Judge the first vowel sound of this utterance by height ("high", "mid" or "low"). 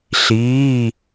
high